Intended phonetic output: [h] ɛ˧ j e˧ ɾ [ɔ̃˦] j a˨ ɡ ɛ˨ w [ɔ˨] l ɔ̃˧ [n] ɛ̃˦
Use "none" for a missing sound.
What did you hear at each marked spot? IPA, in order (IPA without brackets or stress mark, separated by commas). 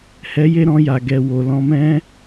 h, ɔ̃˧, o˨, m